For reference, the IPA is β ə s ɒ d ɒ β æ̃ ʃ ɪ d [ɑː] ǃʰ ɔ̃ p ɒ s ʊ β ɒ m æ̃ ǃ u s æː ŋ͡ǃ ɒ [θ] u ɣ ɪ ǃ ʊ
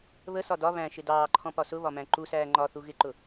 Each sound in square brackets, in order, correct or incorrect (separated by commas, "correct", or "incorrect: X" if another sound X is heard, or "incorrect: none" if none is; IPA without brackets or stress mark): correct, correct